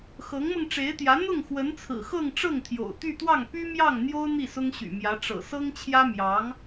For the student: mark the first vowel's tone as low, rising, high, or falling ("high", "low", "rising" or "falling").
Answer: rising